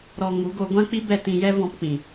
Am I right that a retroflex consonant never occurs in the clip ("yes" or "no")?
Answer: yes